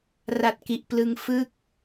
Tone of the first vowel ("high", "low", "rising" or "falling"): low